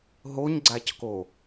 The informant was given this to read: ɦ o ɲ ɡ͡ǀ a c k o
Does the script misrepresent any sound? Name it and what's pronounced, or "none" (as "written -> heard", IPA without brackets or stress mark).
none